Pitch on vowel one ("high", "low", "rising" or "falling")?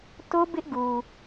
high